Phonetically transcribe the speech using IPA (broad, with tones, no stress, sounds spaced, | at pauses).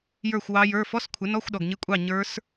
j ə˞˥˨ xʷ w ɑ˦˥ j ə˞˧˥˧ f ɔ˧˥˧ s kʷʰ ɪ˨˥ n ɔ˧˥˧ xʷ ɗ ɔ˨ ɡ ɲ ɪ˧˥˧ kʷʼ ɑ˥˨ ɲ ə˞˦˥ s